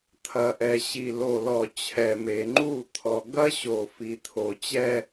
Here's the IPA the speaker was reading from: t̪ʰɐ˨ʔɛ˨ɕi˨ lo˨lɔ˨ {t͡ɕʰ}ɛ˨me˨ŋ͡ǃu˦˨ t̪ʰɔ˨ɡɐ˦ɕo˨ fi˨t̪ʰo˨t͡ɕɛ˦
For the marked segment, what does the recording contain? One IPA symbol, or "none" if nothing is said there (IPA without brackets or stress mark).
t͡ɕʰ